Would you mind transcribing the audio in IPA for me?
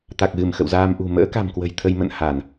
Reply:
t̪a˨˩k̚ɣɨ˧˩m xə̰˧˨wzaː˧mʔṳ˨˩ mə̰ː˧˥ka̤˨˩mkwə̤˨˩j t̪ʰə˧jmə̰˧˨n ha˧˩˨n

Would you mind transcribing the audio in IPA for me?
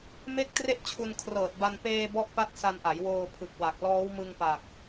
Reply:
me˥˩k̚ tre˥˩ʔt͡ɕʰu˧n kʰrɤː˨˩t̚ba˧n peː˧ bɔ˥˩ʔpa˥˩t̚ sa˧nʔa˩˦j woː˧ pʰɯ˨˩k̚ wa˨˩k̚ lɔː˦˥wmɯ˧ŋpaː˨˩k̚

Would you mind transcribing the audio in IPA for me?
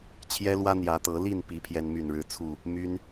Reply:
t͡ɕʰjɛ˦lwä˦ n̪jä˨˦t̪ɤ˨˦li˥˨npi˨˦ pʰjɛ˦nmy˥˨nɻɻ̩˥˨t͡sʰu˥˨ | my˦n

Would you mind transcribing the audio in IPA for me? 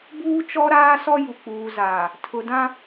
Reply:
buː˦t͡ʃɔ˦ɾaː˦sɔ˦ ju˨k͡puː˨zaː˨ | tʰʊ˨dã˦

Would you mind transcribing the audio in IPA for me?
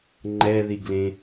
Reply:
ŋ͡ǃɛðiɡlẽ

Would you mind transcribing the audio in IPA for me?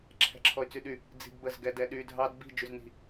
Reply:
ǁʰɛ̤ǁʰɔy̯t͡syɗy | d͡zi̤ɡbəz ɡɛdɛɗy dʱɑd bi̤ d͡ʒyzni̤

